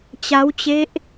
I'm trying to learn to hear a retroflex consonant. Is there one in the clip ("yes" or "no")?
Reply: no